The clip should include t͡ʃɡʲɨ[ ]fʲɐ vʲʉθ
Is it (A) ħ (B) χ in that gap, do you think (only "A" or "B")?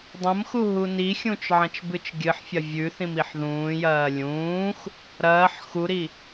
A